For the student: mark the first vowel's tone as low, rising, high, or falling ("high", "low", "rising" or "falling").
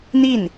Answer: falling